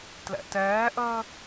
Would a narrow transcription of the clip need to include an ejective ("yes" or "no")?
no